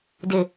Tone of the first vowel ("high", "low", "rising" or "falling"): low